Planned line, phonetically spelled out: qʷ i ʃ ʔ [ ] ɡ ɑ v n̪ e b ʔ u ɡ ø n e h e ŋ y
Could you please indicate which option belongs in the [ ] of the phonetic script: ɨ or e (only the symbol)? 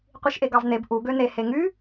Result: e